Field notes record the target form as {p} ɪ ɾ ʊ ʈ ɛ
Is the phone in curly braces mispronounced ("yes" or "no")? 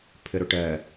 yes